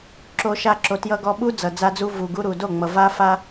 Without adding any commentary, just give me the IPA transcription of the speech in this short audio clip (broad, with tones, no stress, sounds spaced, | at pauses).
ǁ o˧ ʃ a˧ ǁ o˨ t j ʌ˧ ɡ ɔ˧ ɓ u˦ d͡z ʌ˨ d͡z a˧ d͡z u˧ v u˨ ɡ u˧ ɾ u˨ d o˦˨ ŋ͡m ʌ˨ v a˦ f a˦